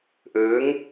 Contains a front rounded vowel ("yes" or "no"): no